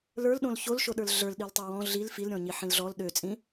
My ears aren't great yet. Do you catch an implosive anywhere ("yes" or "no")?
yes